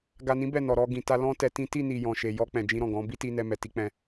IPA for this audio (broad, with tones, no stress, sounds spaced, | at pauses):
ɡ a˨ n ĩ˨˦ b ɛ˦˨ n ɔ˨ ɾ ɔ˧ ɡ ĩ˨ t a˧ l ɔ̃˦ t ɛ˧ t ĩ˦ t i˦˨ n i˨ j ɔ̃˨ ʃ e˨ j ɔ˧ k͡p ɛ̃˨ d͡ʒ ĩ˧ ɾ ɔ̃˨ ɡ ɔ̃˨˦ b i˦ t i˧ n ɛ˧ m ɛ˨ t i˧ k͡p ɛ̃˧